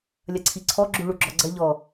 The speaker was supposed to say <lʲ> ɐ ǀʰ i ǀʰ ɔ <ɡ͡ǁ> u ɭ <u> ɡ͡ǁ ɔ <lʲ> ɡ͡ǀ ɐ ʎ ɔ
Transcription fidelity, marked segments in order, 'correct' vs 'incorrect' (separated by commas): correct, correct, correct, incorrect